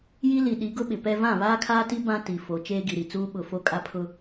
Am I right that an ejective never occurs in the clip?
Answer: no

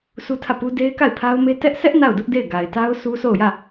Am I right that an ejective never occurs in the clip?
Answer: yes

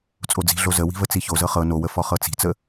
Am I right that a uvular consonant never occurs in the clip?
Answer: no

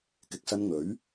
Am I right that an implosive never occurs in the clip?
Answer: yes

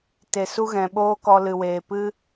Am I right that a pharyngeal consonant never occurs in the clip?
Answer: yes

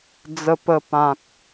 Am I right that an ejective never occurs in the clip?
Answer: yes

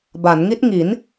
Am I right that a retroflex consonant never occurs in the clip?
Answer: yes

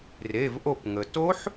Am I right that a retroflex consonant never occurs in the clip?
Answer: yes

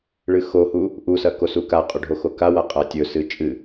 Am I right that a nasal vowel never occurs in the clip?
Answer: yes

